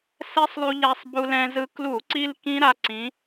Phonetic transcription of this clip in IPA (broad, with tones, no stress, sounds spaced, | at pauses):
s ɛ˦˥ sˤ lˠ u˧ ʎ a˧ sˤ b u˧ l ɛ̃˧ z ɯ˧ k l u˧˩˧ ǀ i˧ l k ĩ˦˥ ɾ a˧ ǀ ĩ˩˧